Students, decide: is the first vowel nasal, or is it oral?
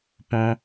nasal